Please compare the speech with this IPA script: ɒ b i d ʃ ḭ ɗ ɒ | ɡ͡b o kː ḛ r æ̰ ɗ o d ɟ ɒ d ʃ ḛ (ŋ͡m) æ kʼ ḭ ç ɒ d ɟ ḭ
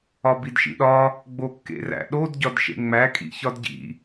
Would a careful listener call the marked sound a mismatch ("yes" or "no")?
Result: no